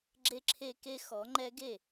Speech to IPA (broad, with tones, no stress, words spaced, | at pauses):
ɡ͡ǁe˦ǁʰe˦ke˦ xɔ˨˩˦ŋ͡ǃɛ˦ɡe˥˩